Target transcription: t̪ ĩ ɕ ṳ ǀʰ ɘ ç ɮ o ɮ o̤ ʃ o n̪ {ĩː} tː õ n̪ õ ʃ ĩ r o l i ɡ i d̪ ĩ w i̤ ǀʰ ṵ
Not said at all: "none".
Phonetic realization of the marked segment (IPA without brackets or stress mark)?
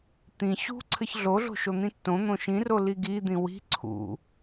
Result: ĩ